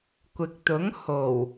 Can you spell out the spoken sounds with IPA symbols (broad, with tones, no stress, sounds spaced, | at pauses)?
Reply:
kʷ ɪ˨ k̚ t̪ ʊ˨˥ ŋ h o˨˩ w